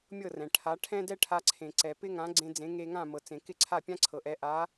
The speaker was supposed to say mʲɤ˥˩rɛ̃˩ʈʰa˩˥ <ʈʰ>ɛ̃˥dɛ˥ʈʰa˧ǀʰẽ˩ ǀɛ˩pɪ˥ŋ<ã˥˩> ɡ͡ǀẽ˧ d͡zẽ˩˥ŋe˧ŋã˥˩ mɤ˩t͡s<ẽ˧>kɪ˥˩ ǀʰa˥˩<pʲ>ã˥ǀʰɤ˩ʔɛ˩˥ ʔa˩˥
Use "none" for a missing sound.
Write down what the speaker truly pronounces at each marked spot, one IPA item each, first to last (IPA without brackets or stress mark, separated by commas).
ʈʰ, ã˩˥, ẽ˩, pʲ